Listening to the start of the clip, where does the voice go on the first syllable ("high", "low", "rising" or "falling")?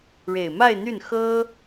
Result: low